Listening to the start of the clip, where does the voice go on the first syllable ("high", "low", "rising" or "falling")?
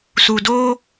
low